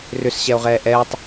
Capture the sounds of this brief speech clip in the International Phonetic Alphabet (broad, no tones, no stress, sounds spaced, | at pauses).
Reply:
r ʏ s ɕ ɛ o̯ ʁ ɛː ʔ ɛː tˤ